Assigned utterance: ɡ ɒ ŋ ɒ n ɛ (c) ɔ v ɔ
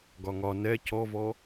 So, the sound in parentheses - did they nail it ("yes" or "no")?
yes